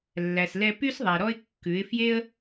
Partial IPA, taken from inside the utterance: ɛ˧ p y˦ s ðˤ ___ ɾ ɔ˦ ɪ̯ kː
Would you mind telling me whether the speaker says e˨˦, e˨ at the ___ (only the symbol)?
e˨